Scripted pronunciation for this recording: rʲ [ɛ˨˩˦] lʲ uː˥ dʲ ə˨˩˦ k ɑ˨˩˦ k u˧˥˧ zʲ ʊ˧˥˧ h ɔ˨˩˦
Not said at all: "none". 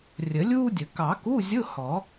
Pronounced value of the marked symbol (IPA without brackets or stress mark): ə˨˩˦